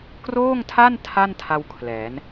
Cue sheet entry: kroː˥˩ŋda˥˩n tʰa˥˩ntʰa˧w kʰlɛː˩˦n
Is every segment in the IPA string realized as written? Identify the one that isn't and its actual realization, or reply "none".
d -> tʰ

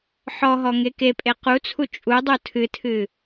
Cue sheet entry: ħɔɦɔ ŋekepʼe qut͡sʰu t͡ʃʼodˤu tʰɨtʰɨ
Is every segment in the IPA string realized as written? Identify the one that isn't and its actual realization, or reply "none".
o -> u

